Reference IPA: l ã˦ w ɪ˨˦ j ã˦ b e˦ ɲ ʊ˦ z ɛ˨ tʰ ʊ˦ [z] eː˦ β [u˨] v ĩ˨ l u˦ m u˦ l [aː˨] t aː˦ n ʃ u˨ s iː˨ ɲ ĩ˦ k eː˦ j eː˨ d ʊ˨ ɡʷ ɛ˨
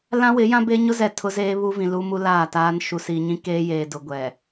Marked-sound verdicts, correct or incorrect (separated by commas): correct, incorrect, incorrect